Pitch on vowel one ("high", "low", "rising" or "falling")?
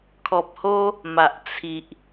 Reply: low